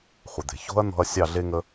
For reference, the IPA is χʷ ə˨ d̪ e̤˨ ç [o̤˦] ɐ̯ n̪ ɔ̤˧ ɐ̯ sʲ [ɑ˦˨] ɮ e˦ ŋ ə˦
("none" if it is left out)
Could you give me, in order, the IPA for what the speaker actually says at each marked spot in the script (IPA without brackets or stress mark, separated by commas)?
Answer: o̤˦, ɑ˦˨